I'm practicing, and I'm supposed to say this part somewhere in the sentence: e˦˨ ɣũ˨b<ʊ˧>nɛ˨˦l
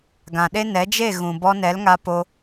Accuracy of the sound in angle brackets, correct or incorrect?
incorrect